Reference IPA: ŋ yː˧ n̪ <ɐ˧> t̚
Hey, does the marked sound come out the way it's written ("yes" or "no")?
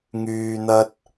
no